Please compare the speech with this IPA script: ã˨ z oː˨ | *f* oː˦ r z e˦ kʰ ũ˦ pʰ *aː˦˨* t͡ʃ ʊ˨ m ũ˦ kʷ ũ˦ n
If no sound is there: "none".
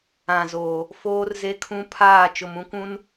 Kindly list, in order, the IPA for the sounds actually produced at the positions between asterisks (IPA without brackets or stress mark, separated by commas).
f, aː˦˨